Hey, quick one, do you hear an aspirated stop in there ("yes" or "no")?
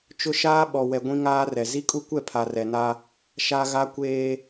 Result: yes